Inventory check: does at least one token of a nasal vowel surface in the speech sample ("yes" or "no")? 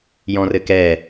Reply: yes